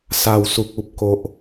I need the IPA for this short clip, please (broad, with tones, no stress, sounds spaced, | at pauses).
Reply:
s a˦ w s u˦ k̚ u˦ p̚ k o˦ ʔ